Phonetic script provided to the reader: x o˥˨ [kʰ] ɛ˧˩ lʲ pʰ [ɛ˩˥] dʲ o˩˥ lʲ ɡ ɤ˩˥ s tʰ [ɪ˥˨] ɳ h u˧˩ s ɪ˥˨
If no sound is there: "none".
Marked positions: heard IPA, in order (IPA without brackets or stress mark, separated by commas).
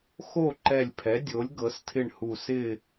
ǃ, ɛ˩˥, ɪ˥˨